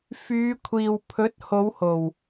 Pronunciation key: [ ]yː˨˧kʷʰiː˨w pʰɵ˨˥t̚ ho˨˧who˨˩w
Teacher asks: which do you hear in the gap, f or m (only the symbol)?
f